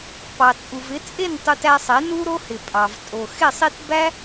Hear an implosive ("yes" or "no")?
no